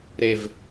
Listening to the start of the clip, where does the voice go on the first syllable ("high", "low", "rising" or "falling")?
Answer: low